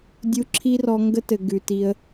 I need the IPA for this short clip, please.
dʲ u˧ ǁʰ i˦ r ɔ˧ ŋ ɡ ə˦ t ɘ˨ ɡ ʉ˨ t i˧ ə̯

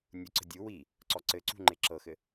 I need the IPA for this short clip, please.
nʲ u ǀ ə̤ dʲ u w i | ǀ ɔ ǀ ɘ ǀ ṳ ŋ͡ǃ e ǁ ɤ x ɘ

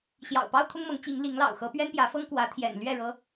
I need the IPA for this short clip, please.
ɕ j ɑ̰˨˩ ʊ̯ p ɑ˦ ʊ̯ t̪ʰ ʊ˦ ŋ m ɤ˨˦ ŋ t͡ɕ i˨˦ ŋ l i˨˦ ŋ l ɑ̰˨˩ ʊ̯ x ɤ˨˦ p ɥ ɛ˦ n p j ä˨˦ f ɤ˦ ŋ k w ä˨˦ t̪ʰ j ɛ̰˨˩ n l ɥ ɛ˥˨ ɻ ɤ˦

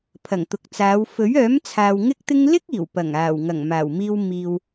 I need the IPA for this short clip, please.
pʰ ɐ˨˩ ŋ t̪ ʊ˨ k̚ t͡s aː˨˧ w f ɵ˨˥ ɥ œː˨˥ m t͡sʰ aː˨ w ŋ ɪ˥ k̚ t̪ ɪ˥ ŋ l ɪ˥ k̚ iː˨˩ w p ɐ˨˩ ŋ aː˨˩ w ŋ ɐ˨˩ ŋ m aː˨˩ w m iː˧ w m iː˨ w

